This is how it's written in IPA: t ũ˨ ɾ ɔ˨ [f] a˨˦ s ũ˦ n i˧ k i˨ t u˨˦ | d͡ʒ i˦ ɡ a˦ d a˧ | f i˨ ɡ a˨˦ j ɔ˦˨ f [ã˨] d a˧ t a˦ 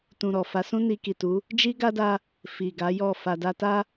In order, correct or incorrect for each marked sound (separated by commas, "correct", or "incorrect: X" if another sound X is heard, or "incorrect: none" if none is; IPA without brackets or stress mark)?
correct, incorrect: a˨